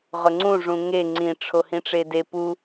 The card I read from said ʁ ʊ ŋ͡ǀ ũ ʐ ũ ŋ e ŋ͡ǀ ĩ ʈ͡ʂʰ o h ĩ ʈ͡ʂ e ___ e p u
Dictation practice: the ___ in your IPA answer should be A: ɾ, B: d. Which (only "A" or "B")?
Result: B